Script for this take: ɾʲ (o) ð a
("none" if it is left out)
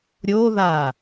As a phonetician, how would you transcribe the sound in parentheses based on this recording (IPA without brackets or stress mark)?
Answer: o